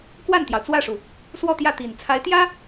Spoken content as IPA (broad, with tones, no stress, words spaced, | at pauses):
kwa˥˩nt̪jɑ˩ʊ̯t͡swä˥˩ʂu˩ | swɔ˥˧t̪jä˥˩ t̪i˨˩n t͡sʰa˧˥ɪ̯t̪jä˥